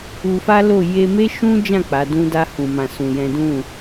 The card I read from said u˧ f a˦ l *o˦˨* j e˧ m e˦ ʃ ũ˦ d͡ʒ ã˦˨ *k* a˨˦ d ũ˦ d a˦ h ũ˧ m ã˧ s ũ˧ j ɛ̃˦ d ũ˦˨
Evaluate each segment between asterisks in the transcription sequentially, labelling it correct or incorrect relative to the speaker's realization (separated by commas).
correct, incorrect